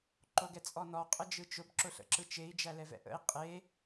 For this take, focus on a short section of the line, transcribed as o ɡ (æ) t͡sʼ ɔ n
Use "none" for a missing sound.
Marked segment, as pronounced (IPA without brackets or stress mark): ɛ